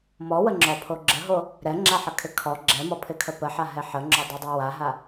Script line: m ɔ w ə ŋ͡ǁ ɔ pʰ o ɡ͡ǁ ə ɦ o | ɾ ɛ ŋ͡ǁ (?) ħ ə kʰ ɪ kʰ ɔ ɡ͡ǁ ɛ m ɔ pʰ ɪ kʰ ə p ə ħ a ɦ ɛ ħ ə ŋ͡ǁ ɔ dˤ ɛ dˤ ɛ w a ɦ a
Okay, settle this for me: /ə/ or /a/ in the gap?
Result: a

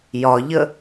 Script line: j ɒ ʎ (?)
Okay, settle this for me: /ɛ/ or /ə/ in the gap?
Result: ə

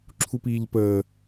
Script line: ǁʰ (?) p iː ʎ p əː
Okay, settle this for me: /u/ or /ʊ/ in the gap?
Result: u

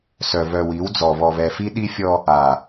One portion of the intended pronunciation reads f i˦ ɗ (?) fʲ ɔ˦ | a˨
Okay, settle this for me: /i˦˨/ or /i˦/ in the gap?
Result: i˦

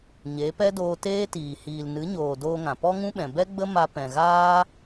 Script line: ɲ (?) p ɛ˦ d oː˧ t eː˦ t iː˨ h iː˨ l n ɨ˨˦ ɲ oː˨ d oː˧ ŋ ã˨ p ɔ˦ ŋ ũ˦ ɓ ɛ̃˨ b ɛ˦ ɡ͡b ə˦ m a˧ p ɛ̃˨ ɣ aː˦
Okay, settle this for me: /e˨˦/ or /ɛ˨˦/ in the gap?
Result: e˨˦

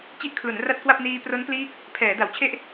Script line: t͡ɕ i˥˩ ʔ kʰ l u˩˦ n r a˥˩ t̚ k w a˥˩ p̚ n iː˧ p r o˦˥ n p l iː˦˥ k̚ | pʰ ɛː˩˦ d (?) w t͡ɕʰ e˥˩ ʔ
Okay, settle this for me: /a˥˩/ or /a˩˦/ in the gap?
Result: a˩˦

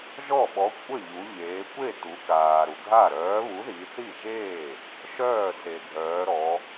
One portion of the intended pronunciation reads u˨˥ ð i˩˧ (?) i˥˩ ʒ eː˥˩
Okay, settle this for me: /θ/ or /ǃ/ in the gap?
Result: θ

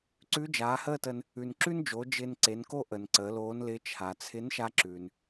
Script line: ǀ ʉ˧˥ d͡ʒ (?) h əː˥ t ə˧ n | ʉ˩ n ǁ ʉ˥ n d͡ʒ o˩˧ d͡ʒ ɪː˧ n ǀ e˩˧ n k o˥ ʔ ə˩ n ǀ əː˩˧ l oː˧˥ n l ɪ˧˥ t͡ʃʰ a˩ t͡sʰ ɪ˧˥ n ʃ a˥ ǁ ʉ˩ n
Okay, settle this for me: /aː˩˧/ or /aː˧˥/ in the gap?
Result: aː˩˧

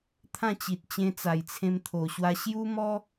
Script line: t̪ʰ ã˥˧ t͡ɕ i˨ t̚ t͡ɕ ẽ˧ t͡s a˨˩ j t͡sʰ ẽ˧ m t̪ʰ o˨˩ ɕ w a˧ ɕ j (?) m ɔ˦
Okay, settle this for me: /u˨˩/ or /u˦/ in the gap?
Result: u˦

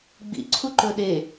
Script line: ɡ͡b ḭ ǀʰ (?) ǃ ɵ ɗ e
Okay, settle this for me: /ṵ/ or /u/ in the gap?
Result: u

